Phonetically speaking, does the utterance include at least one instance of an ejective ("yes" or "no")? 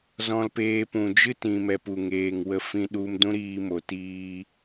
no